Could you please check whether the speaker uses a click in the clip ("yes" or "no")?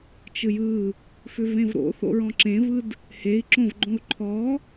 yes